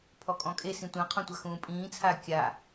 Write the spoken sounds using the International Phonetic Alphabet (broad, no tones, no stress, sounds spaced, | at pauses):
pʰ ɔ kʼ ɔ̃ kʼ e s ĩ tʷ ã qʰ ɔ̃ tʷ a x ũː pʼ ĩː t͡sʰ a kʲ a